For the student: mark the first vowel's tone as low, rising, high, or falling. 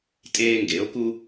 high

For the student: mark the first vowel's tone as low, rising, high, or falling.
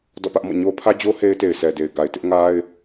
falling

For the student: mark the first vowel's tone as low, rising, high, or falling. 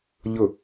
falling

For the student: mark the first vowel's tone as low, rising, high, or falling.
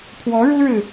rising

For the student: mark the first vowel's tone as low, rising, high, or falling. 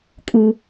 high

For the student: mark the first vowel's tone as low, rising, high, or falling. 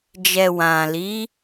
low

